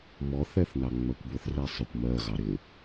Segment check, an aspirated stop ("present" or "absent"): absent